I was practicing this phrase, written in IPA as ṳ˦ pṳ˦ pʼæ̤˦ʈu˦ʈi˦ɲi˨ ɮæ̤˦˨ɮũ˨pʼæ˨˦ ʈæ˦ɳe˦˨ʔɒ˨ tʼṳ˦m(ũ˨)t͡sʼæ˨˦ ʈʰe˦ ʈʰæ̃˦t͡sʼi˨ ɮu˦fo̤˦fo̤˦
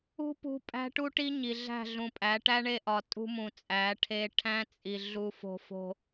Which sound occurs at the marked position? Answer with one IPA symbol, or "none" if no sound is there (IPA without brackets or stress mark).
ũ˨